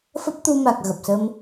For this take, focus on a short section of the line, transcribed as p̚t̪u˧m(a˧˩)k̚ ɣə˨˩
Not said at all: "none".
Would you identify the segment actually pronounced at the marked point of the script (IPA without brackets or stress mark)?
a˨˩